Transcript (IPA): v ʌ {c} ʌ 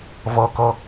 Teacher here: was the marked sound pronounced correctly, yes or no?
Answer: no